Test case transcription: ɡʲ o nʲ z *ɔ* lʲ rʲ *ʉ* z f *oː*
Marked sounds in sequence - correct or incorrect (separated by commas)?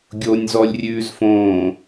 correct, incorrect, incorrect